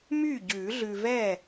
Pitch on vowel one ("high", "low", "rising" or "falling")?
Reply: falling